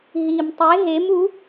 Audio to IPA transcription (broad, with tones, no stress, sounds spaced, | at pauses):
ɦ i˨˩ m tˤ e˧˥ ɦ e˧˥ m u˧˥